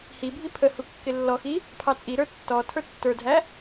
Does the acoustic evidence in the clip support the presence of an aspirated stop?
yes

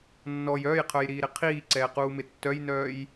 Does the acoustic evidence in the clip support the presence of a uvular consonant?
yes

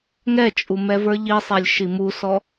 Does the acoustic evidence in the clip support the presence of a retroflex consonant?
no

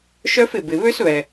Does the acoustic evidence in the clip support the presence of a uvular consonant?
no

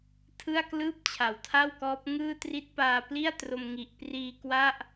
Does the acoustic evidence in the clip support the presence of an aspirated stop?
yes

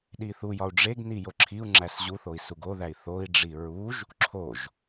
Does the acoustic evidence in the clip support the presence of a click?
yes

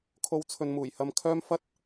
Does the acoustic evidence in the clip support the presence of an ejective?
no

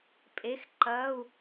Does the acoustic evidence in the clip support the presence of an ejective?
yes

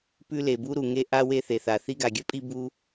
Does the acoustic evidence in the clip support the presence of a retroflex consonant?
no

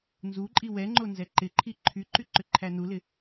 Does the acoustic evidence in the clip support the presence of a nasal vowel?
no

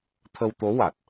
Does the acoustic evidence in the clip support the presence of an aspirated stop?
yes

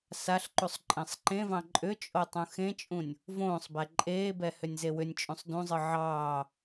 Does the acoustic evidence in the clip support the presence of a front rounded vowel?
yes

